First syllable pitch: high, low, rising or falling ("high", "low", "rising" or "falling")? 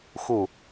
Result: falling